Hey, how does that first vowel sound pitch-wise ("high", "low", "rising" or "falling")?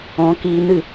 rising